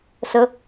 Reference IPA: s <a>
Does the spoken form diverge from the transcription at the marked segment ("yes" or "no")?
yes